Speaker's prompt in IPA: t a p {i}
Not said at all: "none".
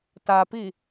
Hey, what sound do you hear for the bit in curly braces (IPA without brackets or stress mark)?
i